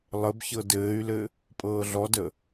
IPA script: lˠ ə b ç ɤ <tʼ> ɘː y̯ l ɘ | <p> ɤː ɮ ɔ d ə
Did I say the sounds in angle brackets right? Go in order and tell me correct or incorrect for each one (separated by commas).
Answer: incorrect, incorrect